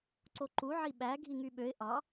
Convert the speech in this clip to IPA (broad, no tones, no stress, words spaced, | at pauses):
ǀoǃu ʕiɓæ ɡʱiŋyɓøɪ̯ ʔɑ